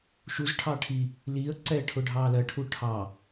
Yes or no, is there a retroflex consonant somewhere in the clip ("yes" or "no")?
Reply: yes